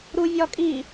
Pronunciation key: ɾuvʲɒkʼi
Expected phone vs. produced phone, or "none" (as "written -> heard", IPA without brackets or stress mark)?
none